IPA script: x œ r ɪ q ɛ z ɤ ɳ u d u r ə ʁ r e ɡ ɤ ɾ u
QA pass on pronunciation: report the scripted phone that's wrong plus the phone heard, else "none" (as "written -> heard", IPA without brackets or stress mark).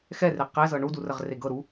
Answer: œ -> ɛ